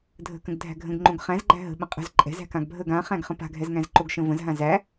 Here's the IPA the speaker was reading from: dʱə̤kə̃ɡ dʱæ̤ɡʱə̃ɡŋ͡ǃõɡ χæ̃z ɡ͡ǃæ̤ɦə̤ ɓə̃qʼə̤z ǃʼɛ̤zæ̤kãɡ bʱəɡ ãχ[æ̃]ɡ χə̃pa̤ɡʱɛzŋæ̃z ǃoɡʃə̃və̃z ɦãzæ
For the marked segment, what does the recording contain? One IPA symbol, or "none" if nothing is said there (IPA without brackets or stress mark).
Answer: æ̃